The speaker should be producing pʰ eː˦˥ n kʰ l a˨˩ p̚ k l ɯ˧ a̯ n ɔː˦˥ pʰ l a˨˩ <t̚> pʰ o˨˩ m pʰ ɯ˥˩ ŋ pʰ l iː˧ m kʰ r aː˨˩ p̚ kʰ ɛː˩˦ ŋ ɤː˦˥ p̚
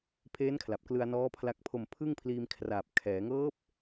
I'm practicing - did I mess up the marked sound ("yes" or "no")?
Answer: yes